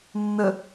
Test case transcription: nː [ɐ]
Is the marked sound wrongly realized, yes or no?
yes